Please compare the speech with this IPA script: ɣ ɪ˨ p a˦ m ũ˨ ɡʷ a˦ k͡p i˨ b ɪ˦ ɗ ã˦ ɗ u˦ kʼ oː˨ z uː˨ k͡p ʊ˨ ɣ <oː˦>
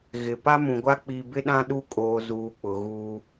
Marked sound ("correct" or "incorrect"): incorrect